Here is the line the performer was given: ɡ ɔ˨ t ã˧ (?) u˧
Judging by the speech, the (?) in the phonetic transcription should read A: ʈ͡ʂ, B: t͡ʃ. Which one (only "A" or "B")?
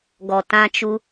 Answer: B